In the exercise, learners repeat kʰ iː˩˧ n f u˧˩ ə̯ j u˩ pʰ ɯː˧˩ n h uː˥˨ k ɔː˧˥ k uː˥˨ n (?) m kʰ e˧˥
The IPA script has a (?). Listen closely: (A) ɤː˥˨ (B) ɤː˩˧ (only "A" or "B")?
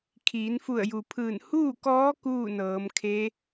B